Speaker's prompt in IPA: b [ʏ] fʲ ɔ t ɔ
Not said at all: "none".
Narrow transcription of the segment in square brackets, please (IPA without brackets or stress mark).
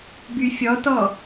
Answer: y